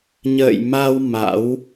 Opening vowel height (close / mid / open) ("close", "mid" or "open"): mid